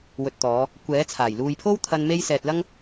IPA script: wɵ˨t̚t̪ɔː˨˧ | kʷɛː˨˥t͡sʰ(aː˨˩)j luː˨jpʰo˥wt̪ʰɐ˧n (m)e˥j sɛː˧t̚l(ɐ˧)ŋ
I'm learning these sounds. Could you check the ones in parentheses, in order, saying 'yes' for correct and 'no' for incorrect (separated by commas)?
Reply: yes, yes, no